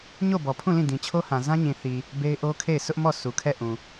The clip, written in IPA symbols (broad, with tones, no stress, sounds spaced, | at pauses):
ɲ o˦˨ b ɔ˨ pʰ ũ˦˨ l ĩ˦˨ d ĩ˨ t͡ɕʰ o˦ h ã˨ z ã˦ ɲ ĩ˨ θ i˨ | b e˦ ɪ̯ ʔ o˦ kʰ e˦˨ ɪ̯ s ʊ˦ ʔ m ɔ˦˨ sʰ u˨ kʰ ɛ˦˨ ʔ ũ˨